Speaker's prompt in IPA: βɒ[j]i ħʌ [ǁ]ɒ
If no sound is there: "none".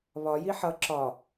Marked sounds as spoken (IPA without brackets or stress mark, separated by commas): j, ǁ